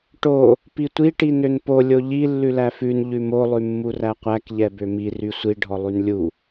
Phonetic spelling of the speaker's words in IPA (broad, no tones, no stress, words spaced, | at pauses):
ʈo | pitʷi ʈinønpo lʲoʎi lːʉlæfʉn ʎʉmo lˠʉmːuræqʷæk ʎɛbømi rysʷi ɖʱɔlˠynlʲu